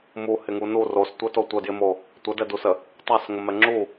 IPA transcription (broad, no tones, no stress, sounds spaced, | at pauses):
m u h ɪ ŋ u n u r o s tʷ ɘ t o tʷ ə d j ɪ m o | tʷ ə d ɛ d u s ə | tˤ a s ŋ ə m ɛ ŋ͡ǁ u